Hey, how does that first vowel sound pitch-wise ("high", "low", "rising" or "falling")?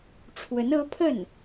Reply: rising